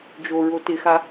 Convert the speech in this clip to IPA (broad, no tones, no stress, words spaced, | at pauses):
d͡ʒoɹo tɪxa